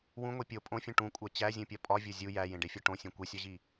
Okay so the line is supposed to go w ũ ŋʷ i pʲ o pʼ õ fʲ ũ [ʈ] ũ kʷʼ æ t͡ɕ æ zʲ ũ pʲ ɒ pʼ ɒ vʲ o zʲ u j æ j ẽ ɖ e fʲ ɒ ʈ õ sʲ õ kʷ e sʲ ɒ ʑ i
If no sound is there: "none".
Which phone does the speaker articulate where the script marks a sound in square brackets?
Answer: ʈ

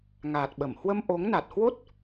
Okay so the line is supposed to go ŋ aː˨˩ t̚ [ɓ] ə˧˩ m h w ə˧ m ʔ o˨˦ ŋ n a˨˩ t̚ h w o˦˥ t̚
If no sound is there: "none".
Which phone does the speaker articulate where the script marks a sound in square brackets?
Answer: ɓ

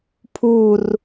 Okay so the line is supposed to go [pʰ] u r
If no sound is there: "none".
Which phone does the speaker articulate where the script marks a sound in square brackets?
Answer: pʰ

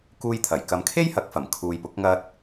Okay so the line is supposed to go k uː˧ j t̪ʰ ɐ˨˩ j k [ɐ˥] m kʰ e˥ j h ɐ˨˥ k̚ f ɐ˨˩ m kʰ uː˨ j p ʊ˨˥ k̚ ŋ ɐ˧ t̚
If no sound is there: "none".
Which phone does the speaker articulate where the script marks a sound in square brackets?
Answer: ɐ˨˧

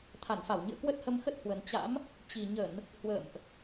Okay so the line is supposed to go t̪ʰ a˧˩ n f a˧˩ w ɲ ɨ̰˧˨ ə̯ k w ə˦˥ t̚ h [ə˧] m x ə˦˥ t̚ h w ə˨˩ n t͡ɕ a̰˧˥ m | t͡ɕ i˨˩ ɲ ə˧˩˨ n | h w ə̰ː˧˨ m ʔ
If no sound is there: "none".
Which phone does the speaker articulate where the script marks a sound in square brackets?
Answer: ə˧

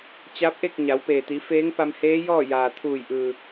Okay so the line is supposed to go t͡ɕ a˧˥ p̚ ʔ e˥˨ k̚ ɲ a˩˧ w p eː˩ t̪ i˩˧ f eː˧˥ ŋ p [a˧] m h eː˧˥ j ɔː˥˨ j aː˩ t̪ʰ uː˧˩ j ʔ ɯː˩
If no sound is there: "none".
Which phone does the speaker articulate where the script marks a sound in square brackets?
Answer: a˧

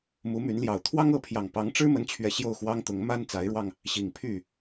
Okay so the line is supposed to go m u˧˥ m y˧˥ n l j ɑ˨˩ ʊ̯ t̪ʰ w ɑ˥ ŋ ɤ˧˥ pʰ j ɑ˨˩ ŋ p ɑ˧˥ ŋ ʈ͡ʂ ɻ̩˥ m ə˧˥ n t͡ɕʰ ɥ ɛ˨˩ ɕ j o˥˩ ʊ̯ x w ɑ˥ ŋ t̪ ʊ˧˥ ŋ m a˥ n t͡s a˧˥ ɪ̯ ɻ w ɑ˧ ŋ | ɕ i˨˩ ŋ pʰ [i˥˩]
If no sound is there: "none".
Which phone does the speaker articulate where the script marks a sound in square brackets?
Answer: y˥˩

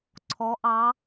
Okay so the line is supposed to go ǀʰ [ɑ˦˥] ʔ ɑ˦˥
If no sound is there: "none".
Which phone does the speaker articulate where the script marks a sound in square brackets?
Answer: ɔ˦˥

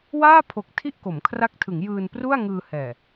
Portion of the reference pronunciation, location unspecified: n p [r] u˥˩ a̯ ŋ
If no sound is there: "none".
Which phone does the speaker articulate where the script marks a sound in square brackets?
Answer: r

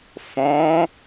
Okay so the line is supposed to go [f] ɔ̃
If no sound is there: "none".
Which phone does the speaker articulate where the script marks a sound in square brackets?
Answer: f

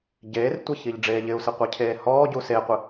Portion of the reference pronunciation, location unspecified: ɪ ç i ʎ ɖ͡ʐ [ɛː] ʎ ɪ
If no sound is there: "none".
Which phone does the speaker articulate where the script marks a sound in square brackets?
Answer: eː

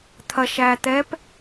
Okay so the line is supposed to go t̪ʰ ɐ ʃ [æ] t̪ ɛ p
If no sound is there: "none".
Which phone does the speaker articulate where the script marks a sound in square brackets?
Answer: æ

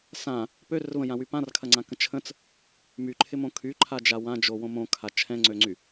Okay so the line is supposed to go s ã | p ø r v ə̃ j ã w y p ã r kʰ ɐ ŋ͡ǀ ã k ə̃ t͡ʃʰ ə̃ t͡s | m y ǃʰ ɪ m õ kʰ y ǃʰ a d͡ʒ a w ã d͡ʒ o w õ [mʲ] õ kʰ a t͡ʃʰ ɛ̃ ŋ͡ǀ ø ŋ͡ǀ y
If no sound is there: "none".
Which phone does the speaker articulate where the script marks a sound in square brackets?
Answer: m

